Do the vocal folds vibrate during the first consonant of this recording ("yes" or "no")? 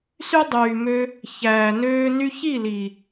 no